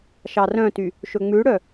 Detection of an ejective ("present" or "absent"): absent